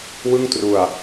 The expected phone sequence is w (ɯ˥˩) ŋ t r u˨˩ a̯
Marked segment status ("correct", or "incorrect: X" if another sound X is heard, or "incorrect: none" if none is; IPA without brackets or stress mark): correct